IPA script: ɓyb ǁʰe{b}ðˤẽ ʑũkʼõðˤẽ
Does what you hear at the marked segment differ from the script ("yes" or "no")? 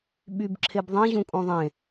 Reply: no